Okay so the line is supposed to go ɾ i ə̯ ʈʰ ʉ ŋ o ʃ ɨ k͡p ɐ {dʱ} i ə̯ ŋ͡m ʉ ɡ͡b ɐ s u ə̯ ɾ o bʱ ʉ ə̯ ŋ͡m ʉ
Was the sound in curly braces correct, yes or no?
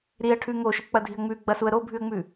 yes